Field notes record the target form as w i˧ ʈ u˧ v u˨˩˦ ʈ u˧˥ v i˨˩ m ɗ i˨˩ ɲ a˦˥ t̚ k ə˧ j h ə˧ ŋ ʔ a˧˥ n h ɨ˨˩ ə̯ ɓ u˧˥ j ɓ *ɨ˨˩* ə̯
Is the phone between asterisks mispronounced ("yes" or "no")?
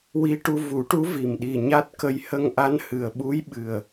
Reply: no